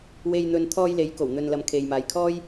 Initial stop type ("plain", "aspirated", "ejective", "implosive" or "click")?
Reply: aspirated